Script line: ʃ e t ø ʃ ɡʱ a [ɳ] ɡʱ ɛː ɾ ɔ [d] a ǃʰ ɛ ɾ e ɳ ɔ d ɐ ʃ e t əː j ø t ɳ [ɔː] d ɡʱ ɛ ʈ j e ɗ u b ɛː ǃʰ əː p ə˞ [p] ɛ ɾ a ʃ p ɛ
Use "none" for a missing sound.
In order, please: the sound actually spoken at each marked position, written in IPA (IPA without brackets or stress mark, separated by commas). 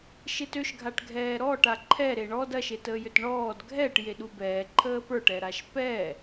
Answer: ʈ, ʈ, ɔː, ʈ